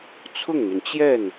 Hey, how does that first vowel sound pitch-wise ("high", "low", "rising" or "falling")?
falling